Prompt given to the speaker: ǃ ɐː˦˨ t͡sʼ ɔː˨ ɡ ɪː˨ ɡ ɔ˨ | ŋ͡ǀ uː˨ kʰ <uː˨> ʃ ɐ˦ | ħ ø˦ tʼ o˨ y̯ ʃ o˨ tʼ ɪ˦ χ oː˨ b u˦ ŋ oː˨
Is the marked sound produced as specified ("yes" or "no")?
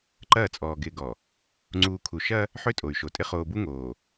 no